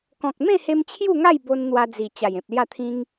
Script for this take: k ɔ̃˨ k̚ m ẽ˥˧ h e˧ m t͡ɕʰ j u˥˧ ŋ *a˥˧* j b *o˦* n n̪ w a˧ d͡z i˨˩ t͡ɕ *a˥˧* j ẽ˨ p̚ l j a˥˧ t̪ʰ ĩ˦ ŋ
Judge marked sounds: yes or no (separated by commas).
yes, no, no